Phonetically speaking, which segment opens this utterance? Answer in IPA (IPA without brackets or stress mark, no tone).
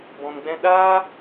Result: b